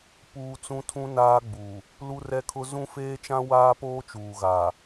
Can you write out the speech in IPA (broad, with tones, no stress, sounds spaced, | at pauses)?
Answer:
p uː˦ t͡s ũ˦ tʰ ũ˦ n aː˦ ɡ͡b uː˨ | l u˦ r ɛ˦ kʰ ʊ˦ z ũ˦ f eː˦ t͡ʃ ã˦ w aː˦ p oː˦ t͡ʃ uː˨ ɣ aː˨